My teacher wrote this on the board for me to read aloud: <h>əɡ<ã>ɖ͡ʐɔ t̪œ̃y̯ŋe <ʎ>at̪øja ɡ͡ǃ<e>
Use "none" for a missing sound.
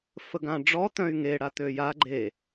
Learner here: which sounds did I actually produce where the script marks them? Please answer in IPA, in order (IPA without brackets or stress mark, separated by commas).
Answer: f, ã, ɽ, e